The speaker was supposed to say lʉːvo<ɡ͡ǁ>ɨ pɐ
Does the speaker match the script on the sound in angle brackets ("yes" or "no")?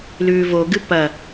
no